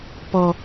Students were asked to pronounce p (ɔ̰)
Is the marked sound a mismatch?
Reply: yes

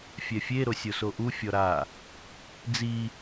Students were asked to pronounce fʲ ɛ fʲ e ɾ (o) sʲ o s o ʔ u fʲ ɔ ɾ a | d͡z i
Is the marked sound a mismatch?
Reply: no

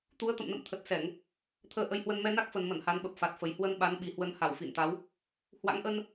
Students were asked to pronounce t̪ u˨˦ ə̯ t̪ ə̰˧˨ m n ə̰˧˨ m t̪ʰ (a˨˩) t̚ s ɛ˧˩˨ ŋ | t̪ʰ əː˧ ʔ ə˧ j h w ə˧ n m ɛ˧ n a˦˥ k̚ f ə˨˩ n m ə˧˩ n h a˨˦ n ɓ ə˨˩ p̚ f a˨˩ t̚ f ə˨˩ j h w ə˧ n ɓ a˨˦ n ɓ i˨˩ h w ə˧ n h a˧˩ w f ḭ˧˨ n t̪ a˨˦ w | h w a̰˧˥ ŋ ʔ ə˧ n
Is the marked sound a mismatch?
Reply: yes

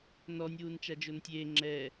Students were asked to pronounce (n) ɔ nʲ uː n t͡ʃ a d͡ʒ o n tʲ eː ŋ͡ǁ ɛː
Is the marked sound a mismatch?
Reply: no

